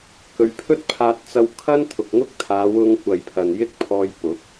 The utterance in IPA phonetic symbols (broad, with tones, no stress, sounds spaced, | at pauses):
k ɵ˨˧ ɥ pʰ ɵ˥ t̚ pʰ aː˧ t̚ t͡s ɐ˧ w kʰ ɐ˥ n t̪ʰ ʊ˨ k̚ ŋ ʊ˥ k̚ t̪ʰ aː˨˧ w ʊ˧ ŋ kʷ ɐ˨ j pʰ ɐ˨ n j ɪ˥ k̚ pʰ ɔː˧ j p ʊ˨˥ k̚